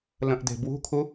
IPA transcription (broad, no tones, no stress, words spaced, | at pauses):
lə̃ʔde̤bwṳkʰu